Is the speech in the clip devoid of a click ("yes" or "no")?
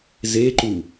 no